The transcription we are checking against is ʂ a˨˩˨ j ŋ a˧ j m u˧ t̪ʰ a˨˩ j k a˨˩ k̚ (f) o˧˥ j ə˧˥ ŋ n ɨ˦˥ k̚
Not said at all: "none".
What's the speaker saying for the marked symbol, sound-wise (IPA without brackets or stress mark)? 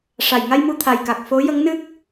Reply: f